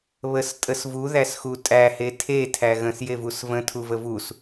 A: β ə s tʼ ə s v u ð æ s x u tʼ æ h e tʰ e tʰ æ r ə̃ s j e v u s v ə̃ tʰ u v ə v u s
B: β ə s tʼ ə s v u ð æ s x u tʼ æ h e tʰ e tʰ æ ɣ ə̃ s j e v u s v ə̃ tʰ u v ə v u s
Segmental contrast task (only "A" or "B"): B